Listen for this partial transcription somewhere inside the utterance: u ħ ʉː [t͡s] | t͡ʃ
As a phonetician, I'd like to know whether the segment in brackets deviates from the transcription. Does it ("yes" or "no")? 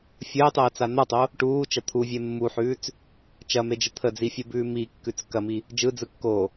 no